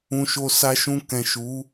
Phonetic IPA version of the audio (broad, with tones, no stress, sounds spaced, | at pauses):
ũ˨ ʃ o˨ s a˧ ʃ ũ˧ k ɛ̃˨ ʃ u˨˦